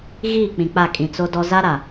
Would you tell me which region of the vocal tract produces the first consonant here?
velum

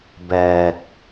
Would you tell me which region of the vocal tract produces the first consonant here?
lips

